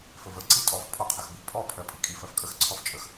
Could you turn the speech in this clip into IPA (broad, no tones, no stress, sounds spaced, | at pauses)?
f ə v ə ǀ i tʼ ɔ f pʰ ɔ qʰ ə x b i pʼ ɔ pʰ ɜ pʼ i kʼ i f ɜ f kʼ ə x ǀʰ ɔ f t͡ʃʼ ə x